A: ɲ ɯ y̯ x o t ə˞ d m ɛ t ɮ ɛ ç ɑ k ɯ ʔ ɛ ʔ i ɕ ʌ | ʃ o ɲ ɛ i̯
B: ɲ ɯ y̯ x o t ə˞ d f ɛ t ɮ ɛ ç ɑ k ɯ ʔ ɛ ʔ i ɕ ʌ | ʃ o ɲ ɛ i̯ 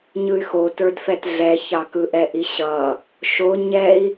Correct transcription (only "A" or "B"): B